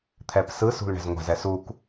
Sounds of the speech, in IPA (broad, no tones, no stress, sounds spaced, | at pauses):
t̪ʰ ɛ p s ɯ s ṳ l ɳ ɛ̤ z ŋʷ a̤ z ɛ s u k